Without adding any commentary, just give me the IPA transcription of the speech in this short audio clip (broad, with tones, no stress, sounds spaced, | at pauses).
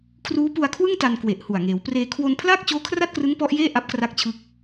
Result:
kʰ r uː˦˥ p u˧ a̯ kʰ w ɯ˥˩ ŋ t a˧ n k w e˨˩ ʔ h u˨˩ a̯ ŋ eː˩˦ w p r eː˧ kʰ w o˧ n pʰ l aː˥˩ k̚ t͡ɕ oː˦˥ kʰ r a˥˩ t̚ k r ɯ˦˥ ŋ p ɔ˦˥ ʔ j eː˥˩ ʔ a˦˥ p̚ k r a˦˥ k̚ t͡ɕʰ ɯ˦˥ k̚